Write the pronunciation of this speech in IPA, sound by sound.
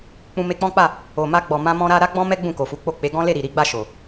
k͡pũ˧me˧k͡pɔ̃˦k͡pa˦˨ | o˨ma˧ɡ͡bɔ˨ mã˧mɔ̃˧ɾa˧ ɾa˦ɡ͡bɔ̃˦mɛ˦ ɡ͡bũ˦˨ko˨fu˨˦k͡po˦˨ k͡pe˨˦ɡɔ̃˦le˦˨ɾi˨ ɾi˨˦ɡ͡ba˦˨ʃo˨

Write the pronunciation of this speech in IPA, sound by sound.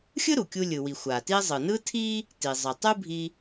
xʲɯ˥ɾu˩kʲu˧ lʲɯ˩wi˩ xʷa˩ti˧zˤɯ˩ nɯ˥tʰi˥ | ti˩zˤɯ˩ tˤu˥bʱi˧

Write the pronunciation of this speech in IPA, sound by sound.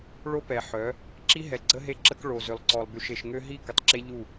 ɭo˦pɛ˨ħœ˨˦ | ǁi˦ɦɛ˨ɡ͡ǀə˦ ɦe˦ǁə˦k ɭo˨ zø˨lˠǀɔ˨lˠby˨ʃ e˨ʃŋø˦ ɦi˦ kə˨tˤǁe˦ʎu˦˨

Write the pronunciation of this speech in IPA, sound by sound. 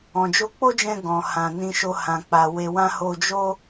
ɔ̃˨d͡ʒo˧k͡po˦d͡ʒɛ̃˧ ɡɔ̃˨hã˨ nĩ˧ʃo˧ hã˨k͡pa˨ we˧wã˦ ho˧d͡ʒo˦

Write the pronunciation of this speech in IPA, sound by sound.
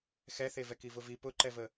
xɛθevɛk ivʊvi pʊǃɛvə

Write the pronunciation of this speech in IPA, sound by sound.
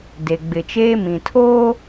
de˨ ɡ͡bɪ˨t͡ʃeː˦mĩ˨ tʰoː˦

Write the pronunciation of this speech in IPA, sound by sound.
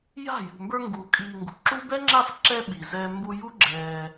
ja̤˦˨ jṳ˨mbə˞˧ŋɡuː˨ kʼiː˨ ŋɡṳ˨ǁu˦ bɛ˦ŋ͡ǁa˦˨f ǁɛ˧ ɓi˨ zɛː˧ mbu˧ju˦ ɡ͡ǁɛː˧

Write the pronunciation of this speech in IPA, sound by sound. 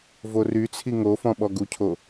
voryt͡sʰi ŋofɔ̃ ɓɔɡucʰo

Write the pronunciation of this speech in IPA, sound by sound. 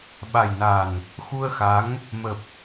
ɓa˨˩jna˨˩n | xu˧ə̯xa˨˦ŋ | mə˨˩p̚

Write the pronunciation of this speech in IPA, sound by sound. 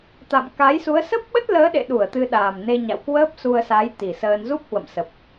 t̪a̰˧˨mka˨˦jsu˨˦ə̯ sə˦˥p̚ɓə˦˥t̚ ləː˨˦ɗḛ˧˨ɗu˧˩ə̯ t̪ɨ˧ɗaː˨˩m ne˧ɲa̰˧˨wkwəː˦˥p̚ su˧ə̯sa˨˦j t̪i˨˩səː˧n zu˦˥p̚hwə̰˧˨msə˨˩p̚

